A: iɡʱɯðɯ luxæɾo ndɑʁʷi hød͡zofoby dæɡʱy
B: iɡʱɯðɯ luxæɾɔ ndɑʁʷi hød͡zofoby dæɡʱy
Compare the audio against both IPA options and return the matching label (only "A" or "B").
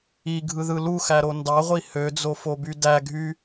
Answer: A